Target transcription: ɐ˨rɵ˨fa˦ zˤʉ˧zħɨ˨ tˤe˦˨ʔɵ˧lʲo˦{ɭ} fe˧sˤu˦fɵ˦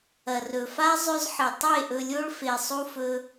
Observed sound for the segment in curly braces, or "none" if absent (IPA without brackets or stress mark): ɭ